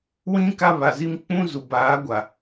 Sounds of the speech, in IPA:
w ĩ˦ k a˦ β a˨ z i˦ m k͡p ũ˦ z u˨ b aː˨˦ ɡʷ a˨

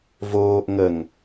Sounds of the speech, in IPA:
v oː ʔ ŋ ə ŋ

